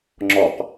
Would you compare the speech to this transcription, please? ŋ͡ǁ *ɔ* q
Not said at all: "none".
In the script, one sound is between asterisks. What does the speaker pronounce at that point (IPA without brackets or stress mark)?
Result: ɔ